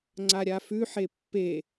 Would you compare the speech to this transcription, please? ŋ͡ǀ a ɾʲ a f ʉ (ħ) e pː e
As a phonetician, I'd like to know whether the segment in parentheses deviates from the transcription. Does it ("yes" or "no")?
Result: no